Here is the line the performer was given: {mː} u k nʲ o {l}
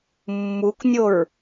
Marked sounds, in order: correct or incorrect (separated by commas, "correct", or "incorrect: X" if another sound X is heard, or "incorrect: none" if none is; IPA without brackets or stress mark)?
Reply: correct, incorrect: ɹ